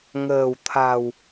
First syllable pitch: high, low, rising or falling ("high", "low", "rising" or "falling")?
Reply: low